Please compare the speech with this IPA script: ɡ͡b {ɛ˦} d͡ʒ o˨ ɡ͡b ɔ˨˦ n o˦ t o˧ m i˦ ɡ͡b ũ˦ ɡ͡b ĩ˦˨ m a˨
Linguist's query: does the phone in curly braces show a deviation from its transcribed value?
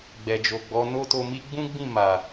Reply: yes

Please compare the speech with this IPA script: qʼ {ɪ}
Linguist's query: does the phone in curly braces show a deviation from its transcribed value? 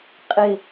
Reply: no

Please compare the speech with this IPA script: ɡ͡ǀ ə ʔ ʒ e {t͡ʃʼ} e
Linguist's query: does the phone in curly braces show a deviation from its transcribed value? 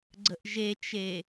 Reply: yes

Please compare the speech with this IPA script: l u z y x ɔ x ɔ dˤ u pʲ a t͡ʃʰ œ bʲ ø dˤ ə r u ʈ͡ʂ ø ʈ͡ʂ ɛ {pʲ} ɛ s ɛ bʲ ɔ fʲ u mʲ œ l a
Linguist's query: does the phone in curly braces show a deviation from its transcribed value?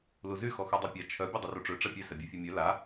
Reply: no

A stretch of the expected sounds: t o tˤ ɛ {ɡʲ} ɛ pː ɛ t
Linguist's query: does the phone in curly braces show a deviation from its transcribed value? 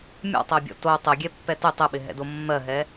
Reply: no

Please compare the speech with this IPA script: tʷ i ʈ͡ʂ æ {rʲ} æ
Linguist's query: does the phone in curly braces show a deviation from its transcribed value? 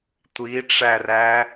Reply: yes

